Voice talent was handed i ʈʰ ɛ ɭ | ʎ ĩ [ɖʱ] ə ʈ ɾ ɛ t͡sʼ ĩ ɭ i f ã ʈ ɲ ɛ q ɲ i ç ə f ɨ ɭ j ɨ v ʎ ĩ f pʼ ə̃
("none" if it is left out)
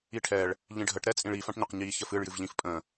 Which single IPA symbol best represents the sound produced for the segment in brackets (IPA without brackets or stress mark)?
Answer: ɖʱ